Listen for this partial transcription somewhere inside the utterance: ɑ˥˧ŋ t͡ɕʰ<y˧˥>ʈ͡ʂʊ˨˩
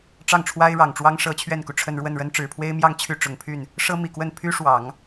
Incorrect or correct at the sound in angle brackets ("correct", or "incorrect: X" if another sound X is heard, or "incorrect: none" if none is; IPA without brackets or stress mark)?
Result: incorrect: y˥˩